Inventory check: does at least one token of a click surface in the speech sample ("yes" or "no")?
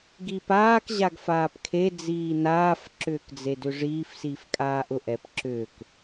yes